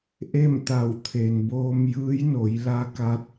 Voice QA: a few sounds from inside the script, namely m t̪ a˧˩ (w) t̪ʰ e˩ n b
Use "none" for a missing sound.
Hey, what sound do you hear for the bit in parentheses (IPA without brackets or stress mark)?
w